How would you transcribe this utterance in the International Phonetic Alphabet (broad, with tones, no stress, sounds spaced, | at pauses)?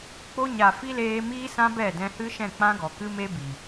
k͡p o˧ ɲ a˨ f i˦ l eː˧ m iː˦ s ã˦ b ɛ˦˨ d ɛ̃˧ h ɨ˦ ʃ ɛ̃˦˨ k͡p ã˦ ɡ ɔ˨ k ɨ˦ m e˦ b i˨